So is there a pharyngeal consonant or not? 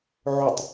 yes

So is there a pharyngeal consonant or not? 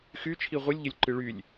no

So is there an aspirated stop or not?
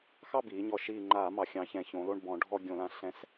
no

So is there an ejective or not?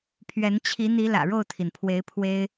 no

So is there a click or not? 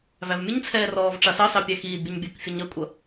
no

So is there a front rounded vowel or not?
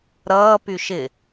yes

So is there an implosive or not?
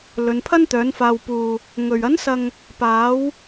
no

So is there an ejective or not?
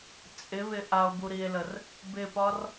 yes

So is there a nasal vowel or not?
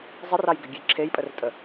no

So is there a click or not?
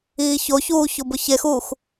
no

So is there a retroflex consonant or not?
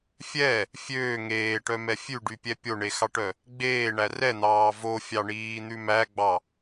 yes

